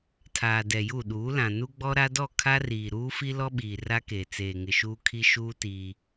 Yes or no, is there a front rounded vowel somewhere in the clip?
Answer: no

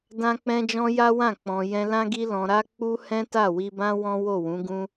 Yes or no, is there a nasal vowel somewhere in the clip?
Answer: yes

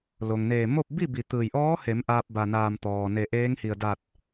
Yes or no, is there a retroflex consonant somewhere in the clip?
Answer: no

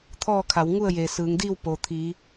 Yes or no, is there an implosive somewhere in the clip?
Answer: no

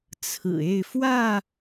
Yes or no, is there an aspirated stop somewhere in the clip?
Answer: yes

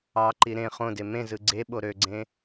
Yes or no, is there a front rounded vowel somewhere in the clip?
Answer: yes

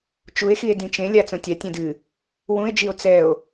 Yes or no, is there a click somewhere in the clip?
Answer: no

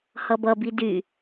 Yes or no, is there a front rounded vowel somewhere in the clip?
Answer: yes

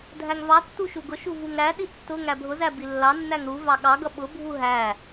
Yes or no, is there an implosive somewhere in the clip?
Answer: yes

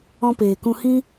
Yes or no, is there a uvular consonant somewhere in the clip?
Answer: no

